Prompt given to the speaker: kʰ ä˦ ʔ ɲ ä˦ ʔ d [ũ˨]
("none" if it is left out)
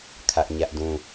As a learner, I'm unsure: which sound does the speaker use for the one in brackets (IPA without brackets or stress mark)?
ũ˦